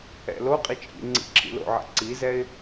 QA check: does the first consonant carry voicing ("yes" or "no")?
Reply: yes